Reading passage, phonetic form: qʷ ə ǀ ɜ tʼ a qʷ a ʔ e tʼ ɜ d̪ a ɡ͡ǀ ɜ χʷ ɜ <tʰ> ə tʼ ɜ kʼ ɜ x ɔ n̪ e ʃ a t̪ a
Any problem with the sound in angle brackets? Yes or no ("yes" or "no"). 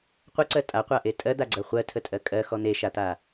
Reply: no